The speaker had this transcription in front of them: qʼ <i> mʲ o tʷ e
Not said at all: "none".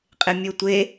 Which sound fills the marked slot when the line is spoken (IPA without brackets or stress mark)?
ɪ